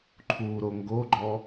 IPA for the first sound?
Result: ǃʰ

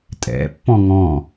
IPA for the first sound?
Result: tʼ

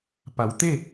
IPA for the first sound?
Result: p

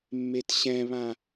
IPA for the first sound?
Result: mː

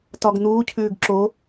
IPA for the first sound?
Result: t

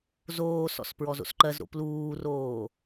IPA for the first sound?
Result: z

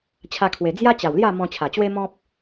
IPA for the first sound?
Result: t͡ɕʰ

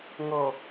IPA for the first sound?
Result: ŋ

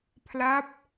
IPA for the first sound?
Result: pʰ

